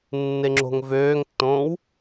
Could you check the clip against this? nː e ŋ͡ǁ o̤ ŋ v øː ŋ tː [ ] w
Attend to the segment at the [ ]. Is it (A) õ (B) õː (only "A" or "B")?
B